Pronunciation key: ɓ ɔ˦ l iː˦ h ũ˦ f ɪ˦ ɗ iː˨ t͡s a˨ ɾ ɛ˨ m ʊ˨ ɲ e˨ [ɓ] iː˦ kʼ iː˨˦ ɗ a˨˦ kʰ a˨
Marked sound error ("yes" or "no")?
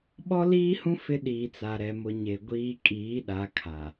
yes